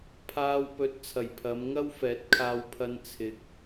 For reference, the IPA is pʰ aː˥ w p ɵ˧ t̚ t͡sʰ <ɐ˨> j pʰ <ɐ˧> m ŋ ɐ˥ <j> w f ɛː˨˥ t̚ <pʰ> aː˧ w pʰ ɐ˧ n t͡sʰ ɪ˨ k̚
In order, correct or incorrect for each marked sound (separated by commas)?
incorrect, incorrect, incorrect, incorrect